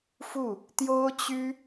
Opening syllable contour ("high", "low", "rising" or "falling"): falling